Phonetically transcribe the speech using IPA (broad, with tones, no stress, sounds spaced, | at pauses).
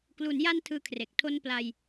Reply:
k l u˩˦ n j a˧ n tʰ ɯː˧ kʰ r e˨˩ k̚ tʰ o˧ n p l a˧ j